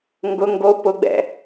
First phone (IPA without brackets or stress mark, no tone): ŋ